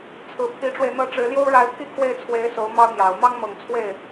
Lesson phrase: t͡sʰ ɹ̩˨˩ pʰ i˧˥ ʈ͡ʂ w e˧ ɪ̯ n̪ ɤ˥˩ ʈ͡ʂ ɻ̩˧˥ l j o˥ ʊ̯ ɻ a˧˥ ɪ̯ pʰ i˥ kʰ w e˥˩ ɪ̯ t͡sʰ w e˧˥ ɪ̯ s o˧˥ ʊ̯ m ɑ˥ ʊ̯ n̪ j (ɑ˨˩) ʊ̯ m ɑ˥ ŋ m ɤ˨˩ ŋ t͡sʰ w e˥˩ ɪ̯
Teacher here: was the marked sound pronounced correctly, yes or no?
yes